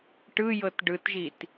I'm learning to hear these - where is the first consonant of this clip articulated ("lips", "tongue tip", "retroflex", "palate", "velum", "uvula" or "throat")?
retroflex